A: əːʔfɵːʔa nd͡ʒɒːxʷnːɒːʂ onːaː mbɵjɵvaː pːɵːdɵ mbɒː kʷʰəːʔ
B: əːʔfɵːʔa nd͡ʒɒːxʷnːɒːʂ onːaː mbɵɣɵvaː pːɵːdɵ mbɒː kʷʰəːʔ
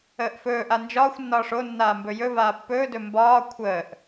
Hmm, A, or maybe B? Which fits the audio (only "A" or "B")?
A